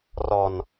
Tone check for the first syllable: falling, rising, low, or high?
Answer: low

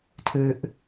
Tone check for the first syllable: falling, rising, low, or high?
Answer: low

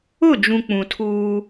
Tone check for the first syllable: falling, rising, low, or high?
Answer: falling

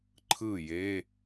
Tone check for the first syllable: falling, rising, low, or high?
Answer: falling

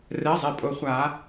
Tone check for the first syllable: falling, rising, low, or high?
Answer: rising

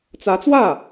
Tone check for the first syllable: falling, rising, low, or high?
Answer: rising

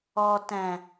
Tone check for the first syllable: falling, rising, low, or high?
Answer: low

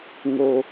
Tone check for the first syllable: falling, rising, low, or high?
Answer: low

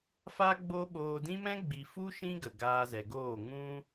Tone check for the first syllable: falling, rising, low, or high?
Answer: high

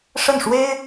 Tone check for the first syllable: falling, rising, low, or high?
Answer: falling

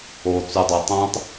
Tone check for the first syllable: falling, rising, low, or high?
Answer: low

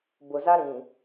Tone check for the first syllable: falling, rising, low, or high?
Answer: low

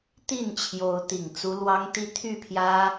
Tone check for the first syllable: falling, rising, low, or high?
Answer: falling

